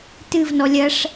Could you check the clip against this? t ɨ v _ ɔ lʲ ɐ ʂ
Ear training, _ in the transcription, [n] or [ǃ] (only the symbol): n